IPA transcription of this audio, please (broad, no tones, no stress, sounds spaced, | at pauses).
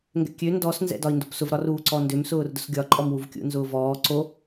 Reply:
ŋ ɡ ɛ̰ kʲ ø n d ɔ s n z ɛ̰ d ɒ i̯ n d o p s ʊ v ɾ ɒ r uː ǀ ɔ n d ø m s ʊː r d ʊ s ɡʲ ɒ ǃʼ ɔ m w u v kʲ ṵ n z ʊː v ɔː ǀ o